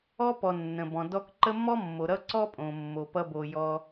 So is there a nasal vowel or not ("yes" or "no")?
yes